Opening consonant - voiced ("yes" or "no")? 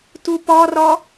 no